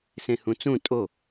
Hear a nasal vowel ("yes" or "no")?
yes